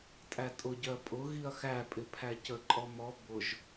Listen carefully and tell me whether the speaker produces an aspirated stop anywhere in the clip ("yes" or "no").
yes